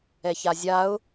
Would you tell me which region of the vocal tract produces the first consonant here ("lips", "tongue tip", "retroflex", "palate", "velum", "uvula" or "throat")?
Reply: palate